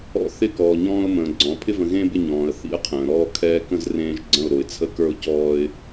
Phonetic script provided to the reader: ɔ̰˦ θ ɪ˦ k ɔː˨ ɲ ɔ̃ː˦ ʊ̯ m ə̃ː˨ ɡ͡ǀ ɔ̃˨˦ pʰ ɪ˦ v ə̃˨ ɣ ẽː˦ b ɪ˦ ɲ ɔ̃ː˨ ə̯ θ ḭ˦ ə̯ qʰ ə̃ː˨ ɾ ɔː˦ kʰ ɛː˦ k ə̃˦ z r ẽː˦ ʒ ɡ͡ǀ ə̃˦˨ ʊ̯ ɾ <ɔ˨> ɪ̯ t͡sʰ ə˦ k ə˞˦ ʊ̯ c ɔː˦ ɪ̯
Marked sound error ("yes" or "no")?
yes